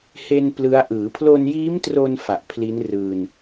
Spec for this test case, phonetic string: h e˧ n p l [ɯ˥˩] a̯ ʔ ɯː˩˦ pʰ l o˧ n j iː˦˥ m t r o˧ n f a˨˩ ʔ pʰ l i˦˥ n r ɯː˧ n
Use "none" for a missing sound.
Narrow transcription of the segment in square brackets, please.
ɯ˦˥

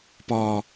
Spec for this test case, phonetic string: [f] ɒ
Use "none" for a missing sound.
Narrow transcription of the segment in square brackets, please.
p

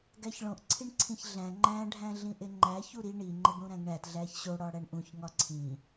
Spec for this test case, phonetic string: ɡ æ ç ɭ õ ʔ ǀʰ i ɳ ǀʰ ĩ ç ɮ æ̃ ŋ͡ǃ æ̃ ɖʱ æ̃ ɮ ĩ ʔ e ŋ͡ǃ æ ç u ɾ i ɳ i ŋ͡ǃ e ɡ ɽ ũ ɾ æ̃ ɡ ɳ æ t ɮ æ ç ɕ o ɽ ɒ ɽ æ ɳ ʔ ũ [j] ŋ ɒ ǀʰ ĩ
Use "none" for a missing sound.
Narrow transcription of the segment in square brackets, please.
ç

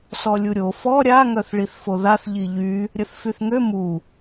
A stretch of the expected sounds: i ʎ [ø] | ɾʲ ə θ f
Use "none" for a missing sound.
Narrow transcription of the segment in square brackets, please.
y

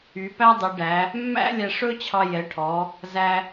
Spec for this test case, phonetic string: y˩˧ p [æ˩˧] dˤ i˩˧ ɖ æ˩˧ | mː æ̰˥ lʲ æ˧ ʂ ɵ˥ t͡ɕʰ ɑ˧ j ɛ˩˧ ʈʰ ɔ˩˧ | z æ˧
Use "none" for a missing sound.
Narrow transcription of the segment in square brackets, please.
æ˥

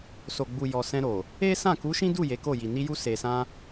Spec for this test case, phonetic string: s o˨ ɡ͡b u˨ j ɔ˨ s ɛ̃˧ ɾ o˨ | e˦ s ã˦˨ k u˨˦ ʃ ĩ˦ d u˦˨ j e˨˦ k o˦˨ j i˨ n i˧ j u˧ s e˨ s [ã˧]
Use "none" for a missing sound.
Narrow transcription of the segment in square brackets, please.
ã˧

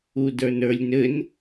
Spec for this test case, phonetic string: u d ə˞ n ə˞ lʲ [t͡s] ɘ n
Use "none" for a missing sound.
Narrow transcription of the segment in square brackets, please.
n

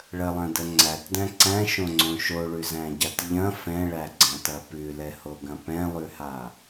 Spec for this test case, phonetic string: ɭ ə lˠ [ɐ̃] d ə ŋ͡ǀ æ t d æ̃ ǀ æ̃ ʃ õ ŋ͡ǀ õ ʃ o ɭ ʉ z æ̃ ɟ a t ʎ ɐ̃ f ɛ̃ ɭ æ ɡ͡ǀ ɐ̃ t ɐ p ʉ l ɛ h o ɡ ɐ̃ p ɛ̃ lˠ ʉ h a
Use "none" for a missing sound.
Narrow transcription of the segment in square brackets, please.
ɐ̃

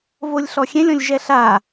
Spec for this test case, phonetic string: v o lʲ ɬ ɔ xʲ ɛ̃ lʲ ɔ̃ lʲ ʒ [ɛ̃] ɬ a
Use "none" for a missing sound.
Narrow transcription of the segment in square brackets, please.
ɛ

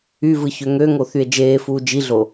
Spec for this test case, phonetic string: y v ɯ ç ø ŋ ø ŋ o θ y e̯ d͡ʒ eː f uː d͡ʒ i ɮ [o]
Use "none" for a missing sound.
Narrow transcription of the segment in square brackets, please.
o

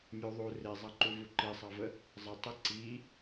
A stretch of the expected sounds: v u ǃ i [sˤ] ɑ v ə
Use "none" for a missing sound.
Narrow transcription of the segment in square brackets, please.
sˤ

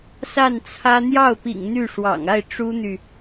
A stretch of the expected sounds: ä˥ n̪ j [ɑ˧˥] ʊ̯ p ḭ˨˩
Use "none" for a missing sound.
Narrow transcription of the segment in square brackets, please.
ɑ˥˩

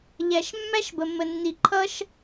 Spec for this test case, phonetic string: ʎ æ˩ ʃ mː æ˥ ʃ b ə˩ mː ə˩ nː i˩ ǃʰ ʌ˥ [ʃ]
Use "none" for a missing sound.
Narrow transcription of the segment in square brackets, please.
ʃ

